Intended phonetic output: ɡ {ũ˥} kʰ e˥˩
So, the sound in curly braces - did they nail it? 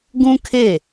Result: yes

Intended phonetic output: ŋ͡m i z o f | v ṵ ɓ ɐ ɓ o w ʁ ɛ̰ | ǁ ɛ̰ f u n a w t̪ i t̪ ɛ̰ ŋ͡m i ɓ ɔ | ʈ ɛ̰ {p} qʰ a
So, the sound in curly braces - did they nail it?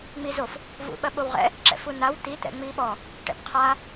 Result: yes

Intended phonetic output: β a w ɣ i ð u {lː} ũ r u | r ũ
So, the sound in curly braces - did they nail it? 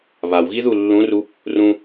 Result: yes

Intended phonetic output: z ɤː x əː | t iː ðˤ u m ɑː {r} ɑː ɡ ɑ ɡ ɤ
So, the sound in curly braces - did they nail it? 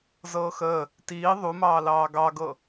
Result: no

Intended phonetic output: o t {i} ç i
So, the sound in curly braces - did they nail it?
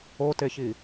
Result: no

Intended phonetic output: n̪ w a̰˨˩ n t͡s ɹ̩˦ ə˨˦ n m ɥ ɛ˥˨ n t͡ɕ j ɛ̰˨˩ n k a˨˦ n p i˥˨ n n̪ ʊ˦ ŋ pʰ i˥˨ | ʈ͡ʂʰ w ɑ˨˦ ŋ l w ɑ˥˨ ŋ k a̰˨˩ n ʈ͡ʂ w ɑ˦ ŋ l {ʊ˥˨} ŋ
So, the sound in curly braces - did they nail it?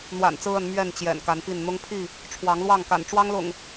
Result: no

